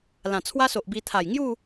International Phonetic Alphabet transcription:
l ã˨˩ t͡sʰ w a˦ s o˨ ʔ b i˧ t̪ʰ a˨˩ j ŋ j u˥˧

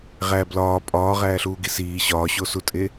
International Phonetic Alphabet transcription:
ʁ æ b l ɒː pʼ ɒː ʁ æː ɬ uː ɡ i s iː ɕ ɒː ɕ o s u tʼ e

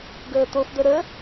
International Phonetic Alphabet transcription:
ɡ əː t̪ o f d̪ ə ɾ ə

